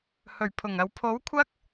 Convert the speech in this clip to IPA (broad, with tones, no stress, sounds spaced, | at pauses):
h ɵ˨˩ ɥ pʰ ʊ˨˩ ŋ ɐ˨ w pʰ o˨˥ w kʷʰ ɐ˥ k̚